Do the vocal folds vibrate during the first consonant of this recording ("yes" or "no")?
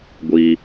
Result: yes